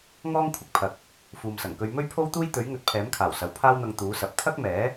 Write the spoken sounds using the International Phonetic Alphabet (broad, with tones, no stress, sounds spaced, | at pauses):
ŋ ɔː˥ ŋ kʷʰ ɪ˧ k̚ pʰ ɐ˨ k̚ | f uː˨ m s ɐ˨˩ ŋ k ɵ˧ ɥ m ɵ˥ ɥ pʰ o˥ w t̪ uː˥ j t̪ ɵ˨˥ ɥ ŋ ɵ˨˥ t̚ pʰ ɛː˨˥ m kʰ aː˨˩ w s ɐ˨ w pʰ aː˥ w n̪ ɐ˧ ŋ t̪ uː˨˥ s ɐ˨˥ p̚ t̪ʰ ɐ˥ k̚ m ɛː˨˥